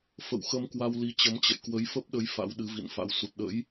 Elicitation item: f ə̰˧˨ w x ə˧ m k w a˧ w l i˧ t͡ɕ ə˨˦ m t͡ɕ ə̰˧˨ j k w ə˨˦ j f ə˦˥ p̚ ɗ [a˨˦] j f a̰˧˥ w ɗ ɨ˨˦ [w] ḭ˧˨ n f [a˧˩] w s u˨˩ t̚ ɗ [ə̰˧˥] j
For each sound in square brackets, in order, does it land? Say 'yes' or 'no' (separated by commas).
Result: no, no, no, yes